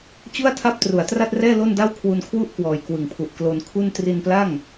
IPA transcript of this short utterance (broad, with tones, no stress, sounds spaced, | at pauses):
t͡ɕ u˥˩ a̯ tʰ a˥˩ p̚ t r u˩˦ a̯ t r a˥˩ t̚ r ɛː˥˩ l o˥˩ n d a˥˩ w kʰ w u˧ n kʰ w u˥˩ ʔ k w ɔː˨˩ j k w ɯ˨˩ ŋ pʰ u˨˩ ʔ k l o˧ n kʰ u˥˩ n t r i˧ n p l a˥˩ ŋ